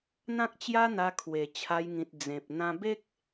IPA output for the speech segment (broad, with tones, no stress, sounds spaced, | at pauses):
n̪ ã˦ k̚ t͡ɕ j a˦ n̪ a˧ kʰ w e˨˩ t͡ɕʰ a˧ j ŋ ĩ˨ t̚ d͡z ẽ˨ p̚ n̪ ã˧ b e˦ k̚